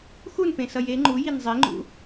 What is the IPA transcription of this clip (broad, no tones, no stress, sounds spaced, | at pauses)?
x u n p ẽ s ʌ j e ŋ͡ǃ u j i n zˤ i ŋ͡ǃ ṵ